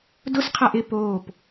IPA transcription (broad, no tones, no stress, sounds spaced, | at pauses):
d ʊ s qʰ a ʔ ɪ p oː p